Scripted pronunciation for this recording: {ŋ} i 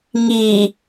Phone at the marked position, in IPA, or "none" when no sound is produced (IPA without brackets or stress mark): ŋ